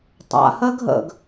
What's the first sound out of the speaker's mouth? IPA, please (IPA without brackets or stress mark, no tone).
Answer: tˤ